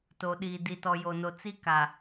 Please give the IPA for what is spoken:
t o˨ ɗ iː˨ d i˨ t ɔ˨ j o˨ n o˨ t͡s i˦ k a˨

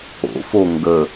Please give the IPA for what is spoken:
o̰ f o ŋ ɡ ə

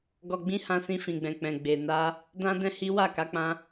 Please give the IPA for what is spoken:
ɡ ɔ˨ ɡ͡b ĩ˧ h ã˧ s ĩ˧ f ĩ˨ ɡ͡b ɛ̃˨ k͡p ɛ̃˨ ɡ͡b e˨ n a˧ | d ã˦ d ɛ̃˦ h i˦ w a˦˨ k a˨˦ k͡p ã˧

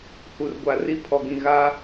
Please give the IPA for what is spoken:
h u˨ r ɡʷ a˨ r i˦˨ pʰ ɔ˨ ɡ ĩ˨ ɣ a˦

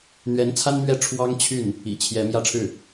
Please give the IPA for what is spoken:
n̪ ɥ ɛ˧˥ n t͡sʰ a˥ n m ɥ ɛ˥˩ ʈ͡ʂʰ w ɑ˥ ŋ t͡ɕʰ y˥˩ n | ḭ˨˩ t͡ɕʰ j ɛ˧˥ m j ä˥˧ ʈ͡ʂʰ ɻ̩˥˩

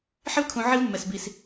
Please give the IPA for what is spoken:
ħ ɪ˥ v kʰ ũ˧ ʕ i˥ v mː ɛ˧ s b i˧ s

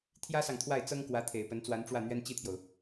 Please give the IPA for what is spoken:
t̪ʰ j ä˥ s ɑ˨ ŋ t̪ʰ w a˥˩ ɪ̯ t͡s ɤ˥ ŋ k w ä˧˥ t̪ʰ e˨˩ ɪ̯ p ə˧˥ n t͡s w a˧˥ n ʈ͡ʂ w ä˥˩ n̪ ɥ ɛ˥ n t͡ɕ i˥˩ t̪ʰ j o˩ ʊ̯

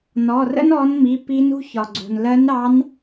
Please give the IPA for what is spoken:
n ɔ˩˧˩ r ə̰˥ n ɔ˧˥ n m i˩˧˩ p i˧˥ n ṳ˥ ç ɒ˩ ɡ͡ǀ ṳ˩ n l ɜ˧˥ n ɾ ɑ˧˥ n

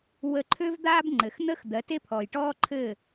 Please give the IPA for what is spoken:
w ə˥˩ ǃʰ ø˥ v d̪ aː˥ b ŋ͡ǃ ɘ˩ x n̪ ə˥ x d̪ ɜ˩˥ t e˥ pʰ ɔː˩ j ʈ ɔː˥ ǃʰ ɘ˥˩

